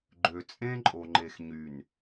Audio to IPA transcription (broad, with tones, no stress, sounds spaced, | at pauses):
ɡ͡ǃ ø˨ t͡sʼ ẽ˦ ǃʼ o˨ ŋ͡ǃ e˨ x ɲ y˨ n